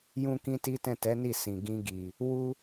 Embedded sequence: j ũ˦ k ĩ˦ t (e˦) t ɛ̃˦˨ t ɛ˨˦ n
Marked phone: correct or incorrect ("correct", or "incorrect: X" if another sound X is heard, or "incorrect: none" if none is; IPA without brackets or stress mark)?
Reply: incorrect: i˦